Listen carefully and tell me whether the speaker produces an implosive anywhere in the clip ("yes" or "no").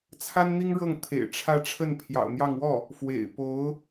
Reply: no